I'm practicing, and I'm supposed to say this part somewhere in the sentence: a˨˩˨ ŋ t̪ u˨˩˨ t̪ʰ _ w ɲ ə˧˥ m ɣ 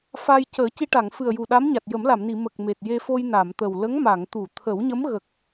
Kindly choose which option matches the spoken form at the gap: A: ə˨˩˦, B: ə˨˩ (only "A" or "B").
A